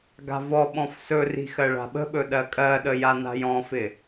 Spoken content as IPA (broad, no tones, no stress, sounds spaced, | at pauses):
ɡ a̤ v ɔ ɓ ɔ̃ f s ɵ r i̤ x ɜ ɭ a̤ ɓ ə̤ ɓ ɵ ɗ ɜ kʼ ɜ ɗ ə j a n a̤ j ɔ̃ f ɪ